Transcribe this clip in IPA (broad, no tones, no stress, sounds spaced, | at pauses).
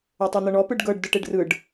o tˤ o n̪ ɤ ɳ ɔ p ɯ ɖ ɡ ɤ ɖ d ɯ ʈ e ɖ r ɯ ɖ